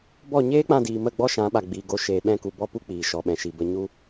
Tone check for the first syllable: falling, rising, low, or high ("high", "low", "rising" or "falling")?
falling